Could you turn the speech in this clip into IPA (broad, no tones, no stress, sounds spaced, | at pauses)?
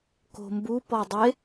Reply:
k o̤ m b u p ɔ dˤ e